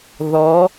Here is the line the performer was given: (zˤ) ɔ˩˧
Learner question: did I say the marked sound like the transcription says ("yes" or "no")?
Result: no